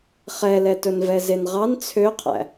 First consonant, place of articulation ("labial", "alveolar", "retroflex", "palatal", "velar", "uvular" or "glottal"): uvular